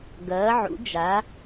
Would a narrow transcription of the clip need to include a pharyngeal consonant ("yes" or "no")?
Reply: yes